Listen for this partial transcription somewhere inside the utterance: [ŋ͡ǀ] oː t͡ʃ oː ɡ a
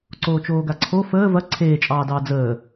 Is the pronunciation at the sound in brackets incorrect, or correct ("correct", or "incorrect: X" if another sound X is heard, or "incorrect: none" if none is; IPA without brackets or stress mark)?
incorrect: ǀ